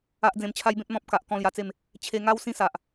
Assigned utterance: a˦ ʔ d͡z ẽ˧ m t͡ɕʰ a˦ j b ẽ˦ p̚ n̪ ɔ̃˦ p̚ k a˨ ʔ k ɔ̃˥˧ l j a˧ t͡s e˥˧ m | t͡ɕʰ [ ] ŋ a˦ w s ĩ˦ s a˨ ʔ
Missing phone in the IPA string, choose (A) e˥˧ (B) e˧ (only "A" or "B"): B